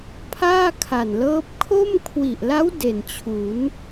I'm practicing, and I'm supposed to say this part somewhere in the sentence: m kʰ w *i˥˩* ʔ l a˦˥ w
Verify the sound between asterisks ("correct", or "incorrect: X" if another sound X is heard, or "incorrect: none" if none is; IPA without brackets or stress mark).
incorrect: i˨˩